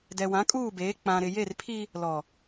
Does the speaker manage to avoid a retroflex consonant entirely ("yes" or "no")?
yes